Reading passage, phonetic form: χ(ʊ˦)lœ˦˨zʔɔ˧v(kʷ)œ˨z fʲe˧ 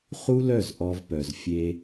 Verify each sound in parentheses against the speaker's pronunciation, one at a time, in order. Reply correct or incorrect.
incorrect, incorrect

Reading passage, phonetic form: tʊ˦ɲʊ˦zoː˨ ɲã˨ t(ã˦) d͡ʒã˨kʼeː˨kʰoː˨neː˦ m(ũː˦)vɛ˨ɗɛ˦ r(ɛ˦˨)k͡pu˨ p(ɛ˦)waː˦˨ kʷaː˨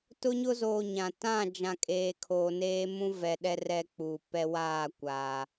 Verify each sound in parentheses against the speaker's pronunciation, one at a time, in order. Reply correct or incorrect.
incorrect, incorrect, incorrect, correct

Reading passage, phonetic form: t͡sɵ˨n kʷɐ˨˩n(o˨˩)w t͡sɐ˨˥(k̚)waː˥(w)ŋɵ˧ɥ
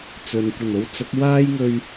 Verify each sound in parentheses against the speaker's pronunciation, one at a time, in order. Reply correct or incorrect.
incorrect, correct, incorrect

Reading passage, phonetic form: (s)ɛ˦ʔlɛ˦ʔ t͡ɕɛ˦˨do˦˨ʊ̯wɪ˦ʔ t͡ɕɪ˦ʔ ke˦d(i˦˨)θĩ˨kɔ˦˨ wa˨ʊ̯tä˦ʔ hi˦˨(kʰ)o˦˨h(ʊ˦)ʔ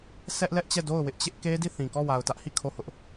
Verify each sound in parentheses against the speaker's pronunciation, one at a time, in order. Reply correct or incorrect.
correct, correct, correct, correct

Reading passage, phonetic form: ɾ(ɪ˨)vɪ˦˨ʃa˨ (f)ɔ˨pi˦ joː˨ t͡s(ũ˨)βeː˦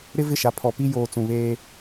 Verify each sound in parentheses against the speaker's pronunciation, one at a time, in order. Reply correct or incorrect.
incorrect, incorrect, correct

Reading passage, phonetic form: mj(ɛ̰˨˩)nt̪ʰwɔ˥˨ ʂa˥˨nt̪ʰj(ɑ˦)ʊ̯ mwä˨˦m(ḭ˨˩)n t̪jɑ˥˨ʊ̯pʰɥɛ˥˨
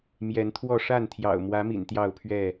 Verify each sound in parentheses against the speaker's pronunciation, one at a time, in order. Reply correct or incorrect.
incorrect, incorrect, correct

